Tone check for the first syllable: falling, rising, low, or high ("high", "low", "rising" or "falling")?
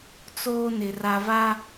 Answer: high